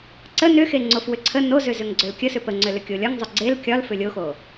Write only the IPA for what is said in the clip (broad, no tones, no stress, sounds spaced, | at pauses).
ǀ ə n ʏ x e ŋ͡ǀ o f w ʏ ǀʰ ə n o z ʏ z ʏ ŋ ɡ͡ǀ ʏ l kʲ ə s ʏ p ə ŋ͡ǀ ʏ l ʏ kʲ o lʲ ɒ ŋ zˤ ʏ ɡ͡ǀ e l kʲ ɒ l f ʏ lʲ o x o